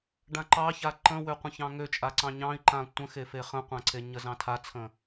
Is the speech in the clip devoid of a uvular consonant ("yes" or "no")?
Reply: no